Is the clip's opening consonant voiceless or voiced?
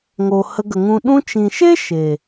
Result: voiced